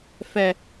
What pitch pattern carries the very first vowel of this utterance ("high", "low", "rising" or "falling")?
low